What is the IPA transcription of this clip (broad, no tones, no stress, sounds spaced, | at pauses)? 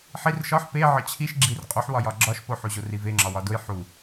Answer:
ħ i r ʃ ɒ ħ p e ʕ ɒ t͡ɕʰ i ʃ ɡ͡ǁ i r qʼ u ħ w ɒ j ɒ ɡ͡ǁ ɒ ʃ p o ħ u ʑ o r i v e ŋ͡ǁ ɒ w ɒ d o j ħ u